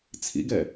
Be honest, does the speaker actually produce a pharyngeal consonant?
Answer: no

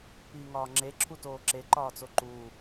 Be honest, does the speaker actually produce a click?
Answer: yes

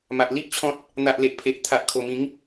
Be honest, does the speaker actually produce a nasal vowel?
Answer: yes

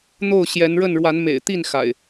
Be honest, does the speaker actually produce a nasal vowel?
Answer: no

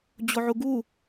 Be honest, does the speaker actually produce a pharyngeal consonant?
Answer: yes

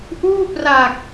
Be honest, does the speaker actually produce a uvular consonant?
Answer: no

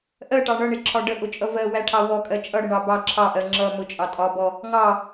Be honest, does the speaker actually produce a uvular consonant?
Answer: no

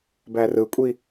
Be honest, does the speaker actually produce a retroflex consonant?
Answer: no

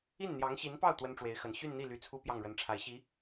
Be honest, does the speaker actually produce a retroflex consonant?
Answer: yes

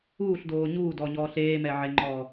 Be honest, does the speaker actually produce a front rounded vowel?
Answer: no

